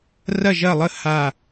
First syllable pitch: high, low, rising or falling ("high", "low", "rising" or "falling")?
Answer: falling